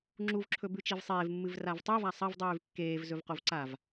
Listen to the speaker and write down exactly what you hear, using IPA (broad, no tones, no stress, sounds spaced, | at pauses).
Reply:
ŋ͡ǁ u v ǁʰ ɵ b ʉ t͡ʃ i v sˤ eː v mː ɨ v r a v tˤ ʉ v a sˤ ɐ v dˤ ʉː v kː eː v z ɵ v q o v ǀ a v